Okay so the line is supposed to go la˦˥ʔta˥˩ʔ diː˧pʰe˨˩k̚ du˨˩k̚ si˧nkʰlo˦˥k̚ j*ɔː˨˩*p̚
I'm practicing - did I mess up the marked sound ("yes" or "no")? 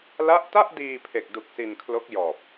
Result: no